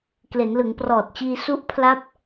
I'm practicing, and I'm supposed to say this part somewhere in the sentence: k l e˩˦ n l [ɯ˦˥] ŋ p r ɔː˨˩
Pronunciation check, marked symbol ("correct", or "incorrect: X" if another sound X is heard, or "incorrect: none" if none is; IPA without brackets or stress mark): incorrect: ɯ˩˦